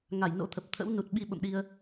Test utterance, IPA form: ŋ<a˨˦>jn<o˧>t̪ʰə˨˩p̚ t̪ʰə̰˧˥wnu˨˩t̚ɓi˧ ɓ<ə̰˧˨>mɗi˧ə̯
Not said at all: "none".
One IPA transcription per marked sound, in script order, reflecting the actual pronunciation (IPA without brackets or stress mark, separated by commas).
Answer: a˧˩, o̰˧˥, ə̰˧˨